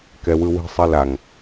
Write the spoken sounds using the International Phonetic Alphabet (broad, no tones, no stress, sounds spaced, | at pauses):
k ɛ w ɯ w i̤ sˤ i l a ŋ